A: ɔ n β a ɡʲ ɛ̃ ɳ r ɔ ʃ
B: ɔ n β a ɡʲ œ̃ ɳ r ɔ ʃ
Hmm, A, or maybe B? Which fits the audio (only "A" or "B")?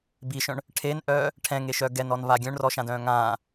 B